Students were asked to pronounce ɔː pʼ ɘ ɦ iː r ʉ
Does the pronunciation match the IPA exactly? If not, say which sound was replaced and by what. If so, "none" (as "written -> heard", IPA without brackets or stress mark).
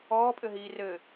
ʉ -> ɘ